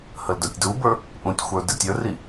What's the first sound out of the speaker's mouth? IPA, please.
h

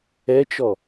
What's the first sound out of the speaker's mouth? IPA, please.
ɛ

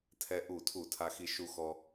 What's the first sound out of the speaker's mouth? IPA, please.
tʰ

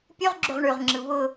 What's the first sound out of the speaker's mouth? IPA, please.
pʲ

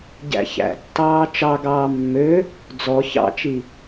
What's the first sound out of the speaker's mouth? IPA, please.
ɟ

